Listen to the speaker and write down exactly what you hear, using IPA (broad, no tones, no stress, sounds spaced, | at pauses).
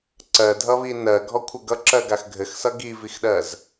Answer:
ǀ ɜ dʱ ʌ β i n ɜ ɡʱ ɔ kʷʰ ɘ ɡ ʌ ǁ ɜ ɡ a x ɡʱ ɘ x s ʌ ɡ i v i x ɗ ɜ z